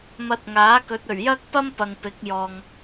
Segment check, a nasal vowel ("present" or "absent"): absent